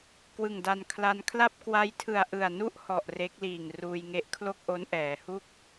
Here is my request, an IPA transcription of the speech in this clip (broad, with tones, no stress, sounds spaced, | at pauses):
k w ɯ˨˩ ŋ d a˧ n kʰ l a˧ n kʰ l a˥˩ p̚ k w a˦˥ j tʰ ɯ˨˩ a̯ ʔ ɯ˨˩ a̯ n u˥˩ ʔ h ɔ˨˩ ʔ r e˦˥ k̚ l iː˨˩ ŋ r uː˧ j ŋ e˦˥ ʔ kʰ l o˥˩ k̚ ʔ o˦˥ n ʔ ɛː˩˦ h u˥˩ k̚